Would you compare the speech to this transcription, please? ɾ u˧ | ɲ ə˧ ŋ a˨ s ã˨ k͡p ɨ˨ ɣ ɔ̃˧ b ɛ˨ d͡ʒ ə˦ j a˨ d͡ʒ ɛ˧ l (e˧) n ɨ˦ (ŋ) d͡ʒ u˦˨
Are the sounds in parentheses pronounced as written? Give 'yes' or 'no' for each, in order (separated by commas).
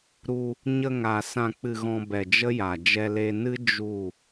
yes, no